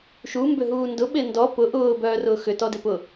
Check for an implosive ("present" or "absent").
present